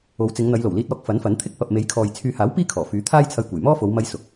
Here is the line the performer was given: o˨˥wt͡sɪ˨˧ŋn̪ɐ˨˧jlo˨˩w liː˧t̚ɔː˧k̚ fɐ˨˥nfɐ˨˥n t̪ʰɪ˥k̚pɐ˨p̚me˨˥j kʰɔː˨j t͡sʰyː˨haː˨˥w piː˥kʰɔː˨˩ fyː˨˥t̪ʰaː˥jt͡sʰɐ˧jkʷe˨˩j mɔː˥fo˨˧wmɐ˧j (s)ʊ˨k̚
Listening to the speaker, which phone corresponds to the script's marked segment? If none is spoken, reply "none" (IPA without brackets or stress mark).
s